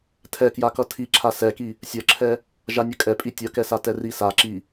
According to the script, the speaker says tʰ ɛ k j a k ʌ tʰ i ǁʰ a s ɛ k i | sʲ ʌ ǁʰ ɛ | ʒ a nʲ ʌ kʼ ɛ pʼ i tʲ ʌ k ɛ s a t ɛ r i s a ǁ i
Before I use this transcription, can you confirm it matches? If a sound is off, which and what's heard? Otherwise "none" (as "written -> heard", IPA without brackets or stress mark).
none